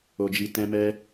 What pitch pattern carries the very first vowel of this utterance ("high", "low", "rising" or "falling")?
low